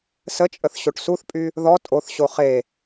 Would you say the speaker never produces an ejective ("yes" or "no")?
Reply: no